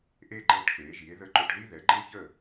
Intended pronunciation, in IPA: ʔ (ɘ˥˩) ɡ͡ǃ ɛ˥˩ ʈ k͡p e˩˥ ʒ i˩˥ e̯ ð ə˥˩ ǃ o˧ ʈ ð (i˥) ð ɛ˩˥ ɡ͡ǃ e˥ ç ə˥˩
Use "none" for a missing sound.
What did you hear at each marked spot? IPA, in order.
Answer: e˥˩, i˥

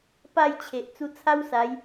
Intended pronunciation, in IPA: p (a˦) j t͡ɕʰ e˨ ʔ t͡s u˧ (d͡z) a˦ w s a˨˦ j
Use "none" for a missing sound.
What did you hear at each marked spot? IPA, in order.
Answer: a˥˧, t͡sʰ

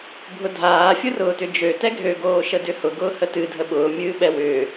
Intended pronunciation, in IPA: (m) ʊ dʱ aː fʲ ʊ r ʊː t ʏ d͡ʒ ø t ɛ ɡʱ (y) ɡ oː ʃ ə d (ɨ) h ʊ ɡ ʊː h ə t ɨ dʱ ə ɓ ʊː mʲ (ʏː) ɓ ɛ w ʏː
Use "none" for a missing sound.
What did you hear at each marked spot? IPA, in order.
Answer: bʱ, ø, ʏ, ɨː

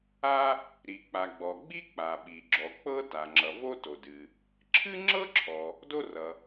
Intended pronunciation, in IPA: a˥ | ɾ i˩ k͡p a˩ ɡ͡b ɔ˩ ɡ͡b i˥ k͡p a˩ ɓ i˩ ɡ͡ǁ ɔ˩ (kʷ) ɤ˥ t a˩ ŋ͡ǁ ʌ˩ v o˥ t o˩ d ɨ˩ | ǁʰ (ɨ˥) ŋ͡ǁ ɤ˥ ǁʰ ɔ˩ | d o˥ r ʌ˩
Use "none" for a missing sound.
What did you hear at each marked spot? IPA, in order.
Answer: k͡p, ɨ˥

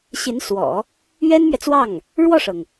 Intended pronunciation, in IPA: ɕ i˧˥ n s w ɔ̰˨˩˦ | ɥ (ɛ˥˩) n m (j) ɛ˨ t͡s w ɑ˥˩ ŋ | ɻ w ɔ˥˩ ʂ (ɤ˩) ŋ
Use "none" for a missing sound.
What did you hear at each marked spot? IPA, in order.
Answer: ɛ˥, ɥ, ɤ˩

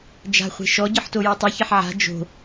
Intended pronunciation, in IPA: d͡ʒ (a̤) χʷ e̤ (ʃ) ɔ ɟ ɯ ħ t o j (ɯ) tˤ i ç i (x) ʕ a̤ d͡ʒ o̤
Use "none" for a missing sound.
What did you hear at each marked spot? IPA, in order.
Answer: a̤, ʃ, ɯ, ħ

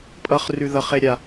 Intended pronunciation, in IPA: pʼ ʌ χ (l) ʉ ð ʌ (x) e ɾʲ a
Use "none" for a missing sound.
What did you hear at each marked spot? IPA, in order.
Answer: r, χ

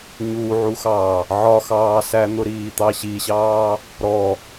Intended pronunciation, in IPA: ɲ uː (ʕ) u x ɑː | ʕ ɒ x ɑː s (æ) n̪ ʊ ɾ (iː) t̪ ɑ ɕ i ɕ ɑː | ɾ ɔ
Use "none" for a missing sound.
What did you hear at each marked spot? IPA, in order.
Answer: ʕ, æ, iː

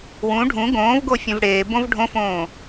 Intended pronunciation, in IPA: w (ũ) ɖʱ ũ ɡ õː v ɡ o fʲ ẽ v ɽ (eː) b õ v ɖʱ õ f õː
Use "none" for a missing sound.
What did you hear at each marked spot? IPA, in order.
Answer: ũ, eː

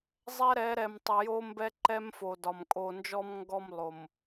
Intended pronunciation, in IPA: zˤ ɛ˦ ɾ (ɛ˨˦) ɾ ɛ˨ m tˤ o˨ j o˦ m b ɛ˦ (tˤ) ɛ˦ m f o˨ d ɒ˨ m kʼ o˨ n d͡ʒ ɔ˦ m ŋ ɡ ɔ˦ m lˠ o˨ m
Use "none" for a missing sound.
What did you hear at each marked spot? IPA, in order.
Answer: ɛ˨˦, ǃ

